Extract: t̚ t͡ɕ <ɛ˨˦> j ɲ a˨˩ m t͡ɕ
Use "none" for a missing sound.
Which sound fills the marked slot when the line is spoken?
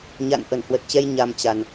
ɛ˧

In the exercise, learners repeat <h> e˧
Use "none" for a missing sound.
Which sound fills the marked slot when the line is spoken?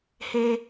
h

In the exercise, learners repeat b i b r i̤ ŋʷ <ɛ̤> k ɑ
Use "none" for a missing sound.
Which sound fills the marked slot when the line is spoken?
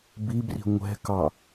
ɛ̤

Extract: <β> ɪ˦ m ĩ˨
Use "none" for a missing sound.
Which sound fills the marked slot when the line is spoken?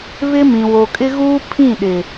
β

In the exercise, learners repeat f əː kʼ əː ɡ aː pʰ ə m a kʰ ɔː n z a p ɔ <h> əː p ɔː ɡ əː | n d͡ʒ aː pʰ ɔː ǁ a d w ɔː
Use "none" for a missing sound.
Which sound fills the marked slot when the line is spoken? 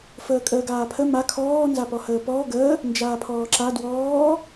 h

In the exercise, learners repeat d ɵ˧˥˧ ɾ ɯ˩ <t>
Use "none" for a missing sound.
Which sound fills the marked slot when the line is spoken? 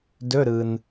n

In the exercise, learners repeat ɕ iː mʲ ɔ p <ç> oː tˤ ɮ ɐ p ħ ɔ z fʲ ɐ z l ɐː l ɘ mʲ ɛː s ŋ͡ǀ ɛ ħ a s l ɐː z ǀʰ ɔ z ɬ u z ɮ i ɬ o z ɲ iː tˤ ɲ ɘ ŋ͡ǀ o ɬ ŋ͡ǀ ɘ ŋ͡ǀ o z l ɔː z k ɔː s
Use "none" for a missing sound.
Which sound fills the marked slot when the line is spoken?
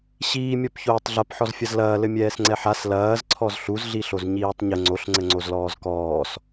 ç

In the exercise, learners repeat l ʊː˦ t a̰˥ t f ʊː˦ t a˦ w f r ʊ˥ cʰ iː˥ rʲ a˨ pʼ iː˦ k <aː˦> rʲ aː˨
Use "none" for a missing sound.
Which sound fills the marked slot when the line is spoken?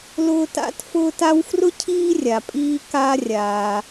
a˦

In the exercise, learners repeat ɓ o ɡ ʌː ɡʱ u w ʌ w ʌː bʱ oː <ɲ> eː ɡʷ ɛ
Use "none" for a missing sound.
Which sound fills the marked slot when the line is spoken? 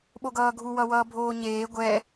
ɲ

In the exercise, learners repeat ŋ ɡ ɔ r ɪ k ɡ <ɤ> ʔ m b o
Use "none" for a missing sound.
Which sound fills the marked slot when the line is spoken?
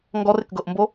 ɤ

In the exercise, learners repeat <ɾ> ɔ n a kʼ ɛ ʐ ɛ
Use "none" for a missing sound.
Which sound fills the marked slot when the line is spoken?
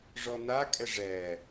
ʐ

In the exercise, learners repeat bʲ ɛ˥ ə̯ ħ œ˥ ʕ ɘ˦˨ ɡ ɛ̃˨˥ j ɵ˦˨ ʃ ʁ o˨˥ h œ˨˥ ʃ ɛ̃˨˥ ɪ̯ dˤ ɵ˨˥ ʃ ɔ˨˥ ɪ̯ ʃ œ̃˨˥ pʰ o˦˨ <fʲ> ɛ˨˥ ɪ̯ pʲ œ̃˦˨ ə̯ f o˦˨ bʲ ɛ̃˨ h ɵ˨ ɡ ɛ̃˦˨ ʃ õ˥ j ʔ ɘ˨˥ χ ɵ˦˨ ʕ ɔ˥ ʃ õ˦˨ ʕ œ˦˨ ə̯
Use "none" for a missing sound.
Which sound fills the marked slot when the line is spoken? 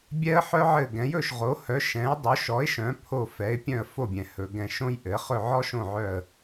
f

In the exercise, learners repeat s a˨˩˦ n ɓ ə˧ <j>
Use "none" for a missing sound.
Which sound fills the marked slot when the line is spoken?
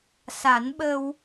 w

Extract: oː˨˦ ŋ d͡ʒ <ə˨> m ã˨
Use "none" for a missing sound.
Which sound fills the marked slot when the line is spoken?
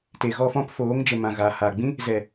ə˨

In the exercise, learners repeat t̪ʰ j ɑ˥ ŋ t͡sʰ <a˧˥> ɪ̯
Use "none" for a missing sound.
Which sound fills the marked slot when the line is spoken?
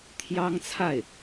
a˥˩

